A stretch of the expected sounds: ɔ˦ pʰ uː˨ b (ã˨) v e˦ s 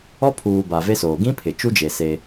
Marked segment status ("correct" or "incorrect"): incorrect